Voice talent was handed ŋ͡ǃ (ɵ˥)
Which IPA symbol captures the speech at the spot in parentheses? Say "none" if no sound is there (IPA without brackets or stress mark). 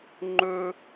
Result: ɵ˥